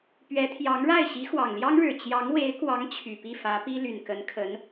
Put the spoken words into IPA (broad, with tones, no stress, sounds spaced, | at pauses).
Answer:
p ɥ ɛ˧˥ t̪ʰ j ɑ˧˥ ŋ ɻ a˥˩ ɪ̯ ɕ i˧˥ x w ɑ˨˩ ŋ l j ɑ˥ ŋ ɻ ɻ̩˨˩ t͡ɕ j ɑ˧˥ ŋ w e˧˥ ɪ̯ k w ɑ˧˥ ŋ t͡ɕʰ y˨˩ p i˥˩ f ä˧˥ p i˥ l y˨˩ n k ə˧˥ n kʰ ə˧˥ n